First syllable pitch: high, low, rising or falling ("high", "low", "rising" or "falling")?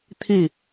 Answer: falling